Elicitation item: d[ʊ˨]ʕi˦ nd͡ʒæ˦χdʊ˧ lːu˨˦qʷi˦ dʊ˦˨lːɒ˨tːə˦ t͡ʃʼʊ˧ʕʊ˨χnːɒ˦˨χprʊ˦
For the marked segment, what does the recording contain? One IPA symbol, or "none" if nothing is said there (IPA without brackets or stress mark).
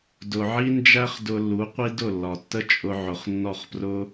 ʊ˨